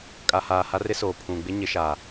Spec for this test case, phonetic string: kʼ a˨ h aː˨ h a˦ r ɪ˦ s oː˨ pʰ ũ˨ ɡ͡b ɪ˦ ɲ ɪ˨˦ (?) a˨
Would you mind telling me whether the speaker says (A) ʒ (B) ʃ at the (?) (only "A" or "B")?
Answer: B